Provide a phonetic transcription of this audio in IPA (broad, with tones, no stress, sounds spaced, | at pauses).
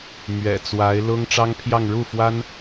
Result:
m ɥ ɛ̰˨˩ t͡s w a˧˥ ɪ̯ l ʊ˥ ŋ ʈ͡ʂ ɑ˥ ŋ pʰ j ɑ˥˧ ŋ ɻ u˥˩ f w a˥ n